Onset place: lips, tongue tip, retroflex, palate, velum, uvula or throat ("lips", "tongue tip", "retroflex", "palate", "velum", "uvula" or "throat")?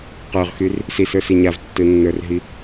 uvula